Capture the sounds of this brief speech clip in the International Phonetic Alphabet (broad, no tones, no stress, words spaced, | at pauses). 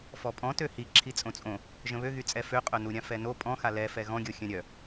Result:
fɔpʼɔ̃ tøhi ǁʰit͡sʼõt͡sʼõ | ʒə̃βøɣyt͡sʼɛ føqʼœnuɾʲã fɛno pʼɔ̃xa lɛfɛ ɣɔ̃ɡʲo xʲœ̃ɾʲœ